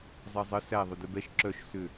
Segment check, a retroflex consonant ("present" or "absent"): absent